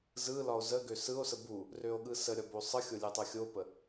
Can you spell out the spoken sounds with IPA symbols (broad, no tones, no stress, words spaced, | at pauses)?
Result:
zɯlɒo̯ zə ɡøsɯo̯sə bu | røo̯ɠɯsəɾʲɒ bosˤɯxʲo lʲɯtˤɯxʲopə